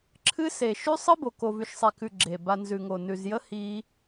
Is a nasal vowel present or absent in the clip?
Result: absent